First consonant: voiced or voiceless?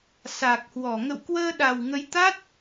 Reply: voiceless